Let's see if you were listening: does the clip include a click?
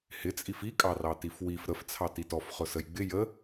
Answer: no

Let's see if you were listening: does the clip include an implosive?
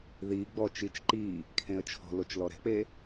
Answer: no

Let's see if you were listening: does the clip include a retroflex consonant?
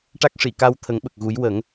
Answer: yes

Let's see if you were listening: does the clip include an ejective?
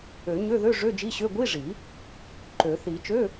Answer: no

